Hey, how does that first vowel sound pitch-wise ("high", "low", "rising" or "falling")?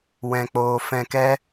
low